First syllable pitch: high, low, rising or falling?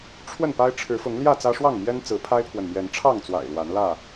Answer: falling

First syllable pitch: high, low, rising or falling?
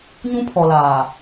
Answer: high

